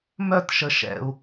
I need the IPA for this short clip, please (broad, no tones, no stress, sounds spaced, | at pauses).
m œ t ʃ ə ʃ ɛ̰ u̯